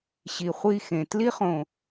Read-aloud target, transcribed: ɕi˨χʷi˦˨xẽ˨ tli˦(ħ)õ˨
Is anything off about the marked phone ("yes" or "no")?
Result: yes